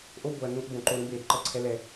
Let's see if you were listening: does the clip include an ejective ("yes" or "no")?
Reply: no